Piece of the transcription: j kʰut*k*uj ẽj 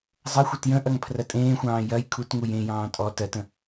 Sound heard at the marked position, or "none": ŋ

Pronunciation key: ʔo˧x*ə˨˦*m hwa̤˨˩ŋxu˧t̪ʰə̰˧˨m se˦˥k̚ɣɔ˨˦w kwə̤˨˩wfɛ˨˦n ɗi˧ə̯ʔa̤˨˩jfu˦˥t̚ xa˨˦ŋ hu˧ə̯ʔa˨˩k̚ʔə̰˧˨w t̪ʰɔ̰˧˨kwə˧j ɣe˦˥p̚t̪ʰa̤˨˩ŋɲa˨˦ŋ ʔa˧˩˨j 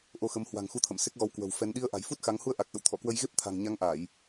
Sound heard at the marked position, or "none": ə˨˦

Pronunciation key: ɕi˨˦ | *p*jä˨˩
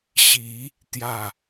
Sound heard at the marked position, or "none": t̪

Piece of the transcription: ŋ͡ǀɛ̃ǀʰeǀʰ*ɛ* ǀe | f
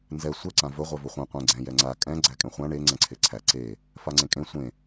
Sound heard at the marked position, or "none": æ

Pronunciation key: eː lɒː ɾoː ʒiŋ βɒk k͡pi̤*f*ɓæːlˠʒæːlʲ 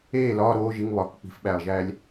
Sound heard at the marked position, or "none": f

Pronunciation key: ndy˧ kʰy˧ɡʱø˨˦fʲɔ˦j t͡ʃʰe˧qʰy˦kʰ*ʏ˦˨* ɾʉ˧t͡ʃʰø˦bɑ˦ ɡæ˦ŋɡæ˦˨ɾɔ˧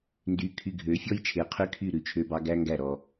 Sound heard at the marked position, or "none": y˦˨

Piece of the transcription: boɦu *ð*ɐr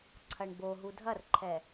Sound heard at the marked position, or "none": dʱ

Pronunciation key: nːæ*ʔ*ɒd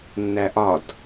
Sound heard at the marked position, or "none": ʔ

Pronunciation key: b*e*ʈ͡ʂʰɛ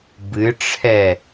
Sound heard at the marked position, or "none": ɨ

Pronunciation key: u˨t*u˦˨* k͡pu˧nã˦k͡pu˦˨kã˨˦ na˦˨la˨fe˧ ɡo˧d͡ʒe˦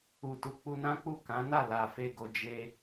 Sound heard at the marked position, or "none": u˨˦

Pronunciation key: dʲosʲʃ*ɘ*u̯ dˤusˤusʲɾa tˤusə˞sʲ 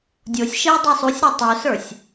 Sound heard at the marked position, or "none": ɘ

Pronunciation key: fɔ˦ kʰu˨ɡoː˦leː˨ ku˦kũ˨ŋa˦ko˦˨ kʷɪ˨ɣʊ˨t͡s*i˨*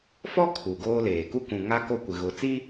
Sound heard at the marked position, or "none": i˦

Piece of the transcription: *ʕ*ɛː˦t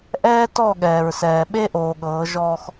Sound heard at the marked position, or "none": ʔ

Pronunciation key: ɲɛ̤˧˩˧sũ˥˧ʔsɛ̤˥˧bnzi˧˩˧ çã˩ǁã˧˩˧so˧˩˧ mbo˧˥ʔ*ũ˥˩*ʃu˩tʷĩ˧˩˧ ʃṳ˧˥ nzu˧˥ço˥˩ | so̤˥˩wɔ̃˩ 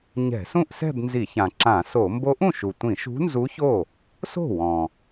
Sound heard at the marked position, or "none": ũ˥˩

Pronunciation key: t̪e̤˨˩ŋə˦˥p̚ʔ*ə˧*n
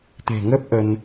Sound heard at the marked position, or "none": ə˧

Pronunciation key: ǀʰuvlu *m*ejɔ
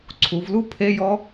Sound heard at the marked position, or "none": pʰ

